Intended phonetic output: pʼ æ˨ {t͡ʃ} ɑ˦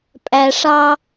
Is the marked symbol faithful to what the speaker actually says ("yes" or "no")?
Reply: no